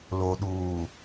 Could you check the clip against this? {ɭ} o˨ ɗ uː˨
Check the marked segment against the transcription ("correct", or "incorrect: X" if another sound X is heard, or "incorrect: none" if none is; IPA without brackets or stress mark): incorrect: l